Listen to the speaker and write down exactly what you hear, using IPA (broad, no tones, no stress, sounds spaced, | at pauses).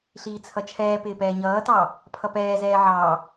ɬ iː t͡sʰ ʌ t͡ʃʰ ɛː p ɪː p ɛː ɲ ʌː t ɑ | pʰ ʌ p ɛː z ɛː ʕ ɑ